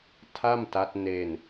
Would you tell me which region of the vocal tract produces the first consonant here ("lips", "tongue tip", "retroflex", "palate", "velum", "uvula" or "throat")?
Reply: tongue tip